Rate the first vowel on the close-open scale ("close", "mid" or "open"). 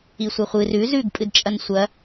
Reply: close